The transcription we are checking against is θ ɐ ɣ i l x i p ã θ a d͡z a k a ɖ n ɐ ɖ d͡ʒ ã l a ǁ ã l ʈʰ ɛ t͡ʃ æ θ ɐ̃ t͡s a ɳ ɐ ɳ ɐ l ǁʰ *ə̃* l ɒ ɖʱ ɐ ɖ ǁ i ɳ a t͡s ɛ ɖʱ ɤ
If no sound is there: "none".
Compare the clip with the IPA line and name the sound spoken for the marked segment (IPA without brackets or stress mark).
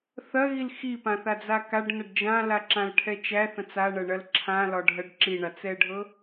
ã